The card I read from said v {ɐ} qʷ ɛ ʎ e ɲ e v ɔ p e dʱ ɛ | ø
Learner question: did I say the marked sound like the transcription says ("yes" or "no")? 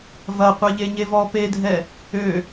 yes